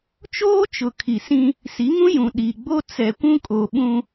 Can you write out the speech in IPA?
t͡ʃ oː˦ t͡ʃ ʊ˨ kʰ i˨ s ĩ˦ | s i˨˦ ŋ ũ˦ j ũ˨ ɗ i˨ ɡ͡b o˦ t͡s ɛ˨ kʷ ũ˦ kʼ o˨ ɓ ũ˦

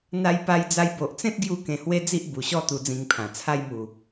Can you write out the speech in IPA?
n̪ a˧ j p a˧ j d͡z a˧ j b o˨ ʔ t͡s ẽ˦ t̚ ɡ j u˧ k ẽ˧ h w e˦ d͡z i˦ ʔ b u˨˩ ɕ ɔ˥˧ t̪ u˧ d͡z ĩ˧ ŋ pʰ ã˨˩ t͡sʰ a˧ j m u˨˩

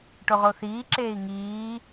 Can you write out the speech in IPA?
ʈ o ʁ o θ iː ǁ eː i̯ ŋ iː

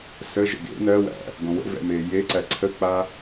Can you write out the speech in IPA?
s ə ʒ ə̰ ɡ ḛ n ɜ w æ̰ | ɡ õ w ə̰ v ɛ̰ m e j e ǀ æ ǀʰ ə k͡p a

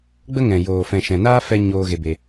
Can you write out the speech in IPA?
ɡ͡b ə˦ ŋ ɛ̃˨ j oː˨ f ɛ̃˨ ʃ ɛ̃˨ n aː˦ f ɛ˦ ɲ oː˧ ɣ e˧ b e˧

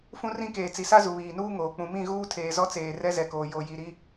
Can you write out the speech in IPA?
f ũ˦ r ĩ˦ k eː˨ t͡s i˨ s a˦ z u˨ β iː˨ n uː˦ ŋ oː˨ k͡p ũ˨ m ĩ˦˨ ɣ uː˦ tʰ eː˨ z ɔ˦ t͡s eː˨ r ɛ˦ z ɛ˨ k oː˨ j o˨ j i˨ ɾ i˦

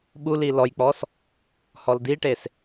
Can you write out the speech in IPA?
ɓ u l i l ɔ j k͡p ɔ s | h ɔ l d i ʈ e s

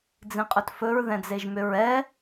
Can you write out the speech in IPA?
d͡z ĩ qʼ ɵ t f ɵ ɹ ð ɛ̃ d͡z e ʒ m ʏ ɹ ɛ

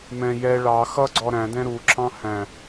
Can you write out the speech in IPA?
m ɛ̃ j ɛ ɭ ɑ x ʌ ɡ͡ǀ ɔ ɾ æ̃ d ɛ̃ ɾ u ǁʰ ɑ̃ h æ̃

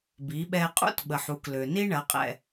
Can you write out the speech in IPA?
b i˩˧ ɓ ɛ˧ qʼ ṵ˥ t ɓ ə˩ ħ u˩˧ k l ø˩ n i˥ ɳ ɐ˩˧ qʼ ɛ̰˩

